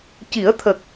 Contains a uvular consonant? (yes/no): no